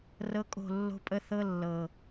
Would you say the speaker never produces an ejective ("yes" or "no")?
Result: no